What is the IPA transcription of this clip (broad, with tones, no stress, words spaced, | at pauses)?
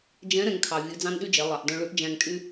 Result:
d͡ʒɛ̃˧˥ ɾɛ̃˧ŋkʰɑ˩vʲʉ˩˧ d͡zɑ̃˥nɗy˥d͡ʒɛ˩˧ lˠɑ˩ʔ dœ̃˧ɭʉ˧˥ʔd͡ʒæ̃˧ŋ tʼy˥